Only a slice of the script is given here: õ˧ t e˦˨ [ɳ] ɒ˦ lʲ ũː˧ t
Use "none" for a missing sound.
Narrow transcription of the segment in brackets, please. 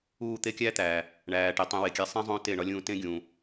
ɳ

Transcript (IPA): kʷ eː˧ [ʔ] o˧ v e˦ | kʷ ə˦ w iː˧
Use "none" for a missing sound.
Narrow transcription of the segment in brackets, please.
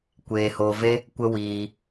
h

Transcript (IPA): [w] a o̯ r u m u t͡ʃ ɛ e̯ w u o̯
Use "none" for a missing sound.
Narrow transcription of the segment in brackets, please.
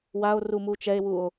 w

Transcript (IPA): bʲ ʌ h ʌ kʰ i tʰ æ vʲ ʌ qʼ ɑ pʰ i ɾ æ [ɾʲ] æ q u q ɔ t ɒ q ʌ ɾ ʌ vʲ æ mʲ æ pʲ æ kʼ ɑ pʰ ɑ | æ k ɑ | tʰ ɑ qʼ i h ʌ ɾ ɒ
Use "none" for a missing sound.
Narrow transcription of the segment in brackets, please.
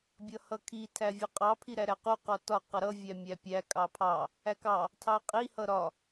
ɾ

